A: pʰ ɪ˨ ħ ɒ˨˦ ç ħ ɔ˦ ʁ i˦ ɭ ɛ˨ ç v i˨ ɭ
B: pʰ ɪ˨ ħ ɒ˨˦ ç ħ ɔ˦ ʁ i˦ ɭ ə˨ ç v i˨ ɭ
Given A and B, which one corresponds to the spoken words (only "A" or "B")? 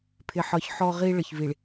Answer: B